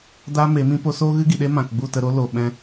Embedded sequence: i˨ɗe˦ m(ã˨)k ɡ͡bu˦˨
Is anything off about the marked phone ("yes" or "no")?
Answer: no